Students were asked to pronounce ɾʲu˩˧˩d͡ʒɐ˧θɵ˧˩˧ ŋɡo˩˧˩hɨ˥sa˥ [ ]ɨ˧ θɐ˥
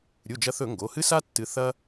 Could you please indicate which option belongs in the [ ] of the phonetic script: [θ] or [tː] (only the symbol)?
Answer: tː